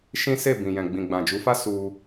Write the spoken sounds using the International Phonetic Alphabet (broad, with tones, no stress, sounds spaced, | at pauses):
ʃ ĩ˦ s e˦˨ b ĩ˨ j ɛ̃˨ ɡ͡b ĩ˨ ɡ͡b ã˨ d͡ʒ u˨˦ f a˦ s u˧